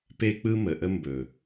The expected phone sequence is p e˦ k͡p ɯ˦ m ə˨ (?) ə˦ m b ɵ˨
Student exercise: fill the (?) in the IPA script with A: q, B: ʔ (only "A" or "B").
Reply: B